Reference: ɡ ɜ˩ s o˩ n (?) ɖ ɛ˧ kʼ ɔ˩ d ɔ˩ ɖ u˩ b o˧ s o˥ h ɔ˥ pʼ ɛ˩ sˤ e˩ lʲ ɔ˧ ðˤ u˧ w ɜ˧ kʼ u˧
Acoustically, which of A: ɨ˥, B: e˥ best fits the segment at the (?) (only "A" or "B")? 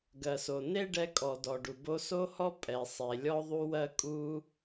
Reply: B